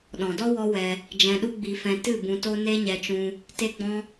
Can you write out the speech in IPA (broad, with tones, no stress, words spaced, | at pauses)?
ɗɔ̃˨dɔ˦ wɔ˦wɛ˧ | d͡ʒɛ̃˧ɗu˦ɡ͡bi˧fɛ̃˧ tɨ˦˨ bũ˧to˦ ne˦ɲɛ˧t͡ʃũ˧ | te˦ɡ͡bɔ̃˦